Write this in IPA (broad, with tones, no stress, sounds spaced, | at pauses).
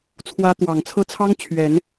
t͡sʰ w ä˧˥ t̪ w ɑ˨˩ ŋ t͡sʰ ɤ˥˩ t͡sʰ ɑ˥ ŋ t͡ɕʰ ɥ ɛ˨˩˦ n